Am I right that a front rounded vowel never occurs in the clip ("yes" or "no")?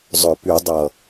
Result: no